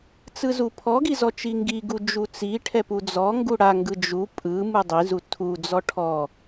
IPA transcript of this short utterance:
t͡s ɯ z u pʰ ɔ ɡ i z ɔ t͡ʃ i ŋ ɡ i ɡ u d͡ʒ u t͡s i ʈʰ ɛ p u d͡z ɔ ŋ ɡ u ɽ a ŋ ɡ ɯ d͡ʒ u pʼ ɯ m ɯ dˤ i z u tʰ u d͡z ɔ ʈʰ ɔ

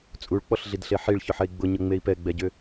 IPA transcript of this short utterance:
t͡sʼ u ɭ k͡p ɔ ɬ ɮ i d ɬ e ħ i ɭ ç ʏ ħ ɛ i̯ ɡ͡b ʊ ɲ ɤ ŋ͡m e i̯ p ɛ ɡ͡b ɛ ɟ ʏ

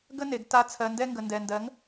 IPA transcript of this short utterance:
ɡ ə˦ n e˨ ɡ t a˧ t͡sʰ ɜ˨ n d ɛ˧ ŋ ɡ ə˨ n d ɛ˨ n d ɜ˨˦ ŋ

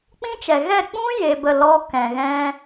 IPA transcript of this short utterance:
k͡p ĩ˦ t͡ʃ ɛ˨ ɣ ɛ˦˨ k͡p ũ˦ j e˧ b ə˦˨ l ɔ˦ k ɛ̃˨ ɣ ɛ̃˦

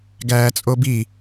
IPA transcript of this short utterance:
ɡ æː t͡sʼ o b i

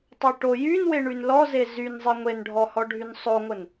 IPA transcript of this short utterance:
tˤ y ʈ o j y n w e ɳ y n l ɔ z e z y n zˤ e ŋʷ e n ɖʱ ɔ h ɔ ɖʱ y n sˤ o ŋʷ ə n

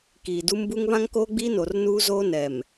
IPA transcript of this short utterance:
k iː˨ d u˦ m b u˦ ŋ β ã˦ ŋ k oː˦ ɡ͡b iː˦ n o˨ r n uː˦ z oː˦ n ɛ˨ m

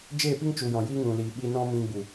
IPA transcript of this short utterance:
d͡ʒ eː˦˨ p i˦ ŋ t͡ʃ u˨ j ɔ̃˨ j iː˦ ŋ ũ˨ l iː˨ ɓ i˧ n ɔ̃˦ m ĩ˧ ɡ͡b u˨

